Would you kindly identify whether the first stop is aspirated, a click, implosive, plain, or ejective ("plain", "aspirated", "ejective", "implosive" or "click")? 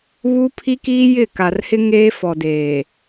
aspirated